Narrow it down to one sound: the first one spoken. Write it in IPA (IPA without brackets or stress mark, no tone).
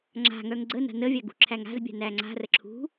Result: ŋ͡ǁ